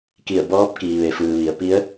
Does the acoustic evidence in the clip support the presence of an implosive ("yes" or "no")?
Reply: no